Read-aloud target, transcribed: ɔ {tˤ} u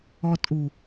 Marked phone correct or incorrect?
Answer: incorrect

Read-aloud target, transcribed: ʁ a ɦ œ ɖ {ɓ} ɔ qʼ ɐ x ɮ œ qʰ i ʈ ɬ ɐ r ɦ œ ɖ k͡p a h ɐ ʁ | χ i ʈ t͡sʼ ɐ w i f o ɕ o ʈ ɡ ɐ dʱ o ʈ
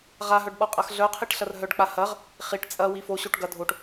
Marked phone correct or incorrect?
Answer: correct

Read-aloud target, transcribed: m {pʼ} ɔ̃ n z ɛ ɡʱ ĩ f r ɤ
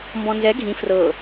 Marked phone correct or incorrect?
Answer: incorrect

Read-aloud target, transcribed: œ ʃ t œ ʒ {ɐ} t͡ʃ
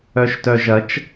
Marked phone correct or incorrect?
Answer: correct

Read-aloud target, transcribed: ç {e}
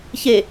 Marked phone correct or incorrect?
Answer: correct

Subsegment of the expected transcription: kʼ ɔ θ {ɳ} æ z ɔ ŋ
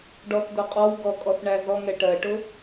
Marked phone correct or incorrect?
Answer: correct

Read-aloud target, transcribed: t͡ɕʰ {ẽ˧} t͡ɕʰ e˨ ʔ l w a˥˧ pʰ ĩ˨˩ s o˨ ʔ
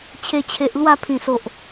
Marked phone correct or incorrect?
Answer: incorrect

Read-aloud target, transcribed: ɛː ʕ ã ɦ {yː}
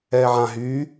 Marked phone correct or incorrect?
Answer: correct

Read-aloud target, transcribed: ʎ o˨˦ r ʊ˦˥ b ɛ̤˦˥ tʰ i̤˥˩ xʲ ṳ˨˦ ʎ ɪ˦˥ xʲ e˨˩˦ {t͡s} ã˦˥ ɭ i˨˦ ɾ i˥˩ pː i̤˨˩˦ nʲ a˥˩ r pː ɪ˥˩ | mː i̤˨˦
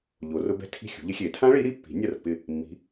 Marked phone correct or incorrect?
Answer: incorrect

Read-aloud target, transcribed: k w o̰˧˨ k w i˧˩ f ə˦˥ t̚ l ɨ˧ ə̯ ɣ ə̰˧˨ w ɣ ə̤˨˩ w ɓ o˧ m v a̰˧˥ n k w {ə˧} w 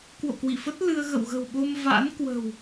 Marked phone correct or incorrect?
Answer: incorrect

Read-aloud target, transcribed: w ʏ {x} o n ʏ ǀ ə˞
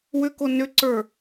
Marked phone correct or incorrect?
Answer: incorrect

